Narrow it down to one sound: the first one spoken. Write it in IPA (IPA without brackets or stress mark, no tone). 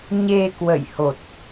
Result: ɲ